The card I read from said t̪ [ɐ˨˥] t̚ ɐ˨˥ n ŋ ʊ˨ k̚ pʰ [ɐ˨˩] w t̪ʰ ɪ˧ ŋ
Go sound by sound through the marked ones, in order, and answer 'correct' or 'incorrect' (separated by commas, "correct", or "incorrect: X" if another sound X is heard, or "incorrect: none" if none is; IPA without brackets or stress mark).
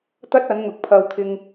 incorrect: ɐ˥, incorrect: ɐ˧